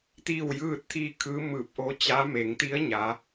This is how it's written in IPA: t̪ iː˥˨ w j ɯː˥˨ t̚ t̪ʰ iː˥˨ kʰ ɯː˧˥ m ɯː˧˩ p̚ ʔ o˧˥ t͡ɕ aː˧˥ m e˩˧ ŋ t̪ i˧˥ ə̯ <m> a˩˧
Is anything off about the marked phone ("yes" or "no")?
yes